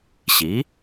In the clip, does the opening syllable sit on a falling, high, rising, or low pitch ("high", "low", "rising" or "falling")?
rising